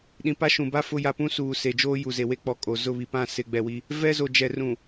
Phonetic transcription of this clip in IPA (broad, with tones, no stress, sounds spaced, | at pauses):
ɗ ĩ˨ p a˦ ʃ ũ˨ b a˦ f ʊ˦ j a˦ p ũ˦ s uː˨ s e˨ d͡ʒ oː˦ j u˨ z e˨ w e˦ k͡p ɔ˨ kʼ o˨ z ʊ˦˨ β i˨ p ã˦˨ s ɪ˨ ɡ͡b ɛ˨ w i˦ | v ɛ˦ z o˨ d͡ʒ ɛ˨ r ũ˨